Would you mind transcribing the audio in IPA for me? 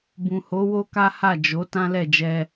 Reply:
bũ˨ho˨˦wo˦ka˦ ha˦˨ d͡ʒo˨˦ tã˦lɛ˦˨d͡ʒɛ˧

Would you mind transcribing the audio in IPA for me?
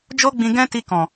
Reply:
d͡ʒo˦ɡ͡bĩ˧ ɡɛ̃˦ti˧ kɔ̃˨

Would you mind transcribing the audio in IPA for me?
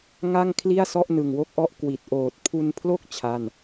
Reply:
ŋa˥˩ŋ kʰli˥˩a̯sɔ˥˩ʔ nɯ˨˩ŋwo˥˩k̚ʔɔ˥˩ʔ kwi˨˩t̚ ʔoː˨˩t̚pʰu˧npʰlo˥˩k̚ t͡ɕʰa˥˩n

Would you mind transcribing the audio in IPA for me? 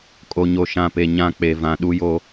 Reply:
kʼo˨ɲo˨ʃã˨pe˨ ɲã˦˨k͡pe˨vã˨ ɗu˦jo˦

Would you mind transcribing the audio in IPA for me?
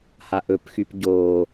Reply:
haʔɵpxyp ɟo

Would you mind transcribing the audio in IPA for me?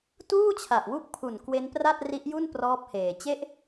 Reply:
tuː˥˩t͡ɕʰa˨˩ʔwu˦˥k̚pʰu˨˩n kwe˦˥npra˥˩t̚ri˦˥ʔju˥˩n prɔː˦˥p̚heː˨˩ t͡ɕe˦˥ʔ

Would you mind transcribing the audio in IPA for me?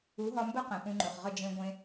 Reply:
u˨˦ɦɒ˧mbə˦ qẽ˨pũ˧ŋ͡ǃɵ˨χ ʁə˦˨d͡ʒẽ˧ ɡʷẽ˧

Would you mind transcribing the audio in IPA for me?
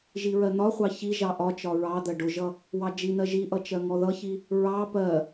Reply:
ʒiɹɜn̪ɒχʷɑ çi ʒɑʔɒt͡ʃɒ ɹɑd̪ɜ ɖʊʒʌ | wɑd͡ʒin̪ɜ ʒiʔʌ t͡ʃɜŋɔðʌçi | ɹɑ pɜ

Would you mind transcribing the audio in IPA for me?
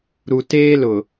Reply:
ɾu˨teː˦lʊ˨

